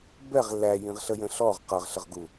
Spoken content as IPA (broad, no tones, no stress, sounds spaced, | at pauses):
b ɛ ʁ l æ j ĩ ʁ ɬ ə j ə̃ ɬ ɔ ʁ q ʌ ʁ ɬ ə ʁ ɡ u